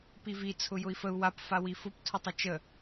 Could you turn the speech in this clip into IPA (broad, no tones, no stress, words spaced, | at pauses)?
pivi t͡sʰʊjʊi̯fəu̯ wap fawifʊp tʰʊtˤət͡ʃə